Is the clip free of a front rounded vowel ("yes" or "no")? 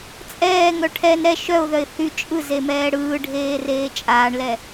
no